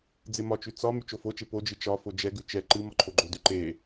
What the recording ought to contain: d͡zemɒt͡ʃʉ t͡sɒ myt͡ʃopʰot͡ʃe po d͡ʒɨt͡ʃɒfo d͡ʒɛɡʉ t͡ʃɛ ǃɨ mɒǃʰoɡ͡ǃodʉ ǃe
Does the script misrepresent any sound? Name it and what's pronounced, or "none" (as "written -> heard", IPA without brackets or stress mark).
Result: pʰ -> f